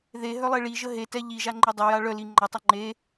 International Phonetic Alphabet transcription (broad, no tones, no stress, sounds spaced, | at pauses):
ð e ɦ œ lˠ e ɭ i ʒ ə ɦ e t ɛ ʎ i ʒ a ŋ͡ǃ e dˤ ə j a ɭ œ l i ŋ͡ǃ a tˤ ɛ ŋ͡ǃ e